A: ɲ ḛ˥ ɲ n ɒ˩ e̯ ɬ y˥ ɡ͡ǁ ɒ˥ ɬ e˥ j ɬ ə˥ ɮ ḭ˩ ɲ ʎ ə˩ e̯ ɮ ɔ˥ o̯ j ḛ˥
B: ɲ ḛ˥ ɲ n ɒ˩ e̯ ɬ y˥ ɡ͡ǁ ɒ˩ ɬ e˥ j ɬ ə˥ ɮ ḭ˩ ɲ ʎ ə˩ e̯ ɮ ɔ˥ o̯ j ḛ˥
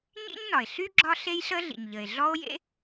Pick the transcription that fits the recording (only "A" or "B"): A